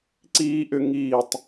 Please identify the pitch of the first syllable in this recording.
high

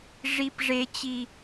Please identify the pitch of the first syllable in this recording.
high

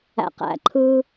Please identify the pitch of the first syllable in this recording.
low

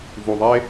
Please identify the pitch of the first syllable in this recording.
low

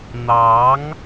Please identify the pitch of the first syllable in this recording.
rising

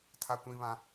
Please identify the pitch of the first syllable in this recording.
high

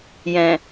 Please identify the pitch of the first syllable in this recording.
low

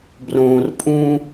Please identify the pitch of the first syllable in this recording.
low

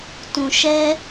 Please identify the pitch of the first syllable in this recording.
low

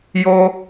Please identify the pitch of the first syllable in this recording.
high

